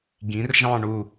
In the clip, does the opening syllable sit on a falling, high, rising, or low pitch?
rising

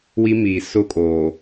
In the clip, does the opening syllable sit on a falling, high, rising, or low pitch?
high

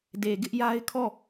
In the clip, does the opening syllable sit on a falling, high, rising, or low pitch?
low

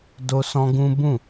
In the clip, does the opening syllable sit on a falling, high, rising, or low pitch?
high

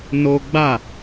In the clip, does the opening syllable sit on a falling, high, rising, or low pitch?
high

